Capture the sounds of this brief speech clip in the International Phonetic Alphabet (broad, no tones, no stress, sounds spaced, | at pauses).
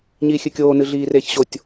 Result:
ɲ iː xʲ ɨ kʲ oː n ɨ ɮ iː r eː ç ɕ o tʲ